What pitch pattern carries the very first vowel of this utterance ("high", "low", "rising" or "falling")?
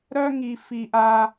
high